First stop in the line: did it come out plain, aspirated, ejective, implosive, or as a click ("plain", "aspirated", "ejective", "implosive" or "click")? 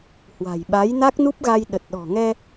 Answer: implosive